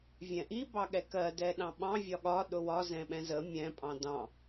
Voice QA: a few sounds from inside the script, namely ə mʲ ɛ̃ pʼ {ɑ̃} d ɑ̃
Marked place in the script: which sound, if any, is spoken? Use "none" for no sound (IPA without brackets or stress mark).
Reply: ɑ̃